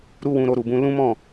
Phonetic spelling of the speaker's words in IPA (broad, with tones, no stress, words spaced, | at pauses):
ɾu˦wũ˧ ɾo˧ɾu˨bũ˧ lũ˦mɔ̃˦˨